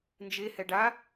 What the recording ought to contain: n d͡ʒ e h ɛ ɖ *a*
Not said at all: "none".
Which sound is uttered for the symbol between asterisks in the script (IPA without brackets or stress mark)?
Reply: a